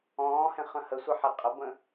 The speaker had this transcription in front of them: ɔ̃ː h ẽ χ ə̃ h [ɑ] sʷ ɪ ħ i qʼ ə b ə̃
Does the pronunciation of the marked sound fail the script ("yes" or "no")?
yes